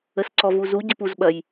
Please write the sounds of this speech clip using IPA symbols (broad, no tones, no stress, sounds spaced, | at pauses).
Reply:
ə s ǀ ɔ v u z u ɟ ɘ p u z ɓ ɐ j